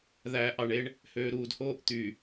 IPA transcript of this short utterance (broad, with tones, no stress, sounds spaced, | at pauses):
ð æː˨ ʔ ɑ˨ ɳ e˦ ɳ | h øː˨ ɾ uː˨ d h oː˦ ʔ t̪ y˨